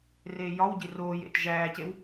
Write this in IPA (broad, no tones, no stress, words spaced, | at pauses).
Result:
reːjɒwɟi roːj ḛt ʒæːcew